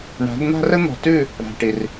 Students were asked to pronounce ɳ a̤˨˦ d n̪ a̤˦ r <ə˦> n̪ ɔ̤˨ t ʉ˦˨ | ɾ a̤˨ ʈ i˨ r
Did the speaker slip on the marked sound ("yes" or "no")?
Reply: no